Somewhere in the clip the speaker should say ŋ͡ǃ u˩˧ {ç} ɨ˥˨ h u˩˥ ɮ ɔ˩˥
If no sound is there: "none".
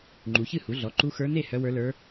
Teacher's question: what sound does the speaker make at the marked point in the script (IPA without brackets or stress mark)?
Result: ç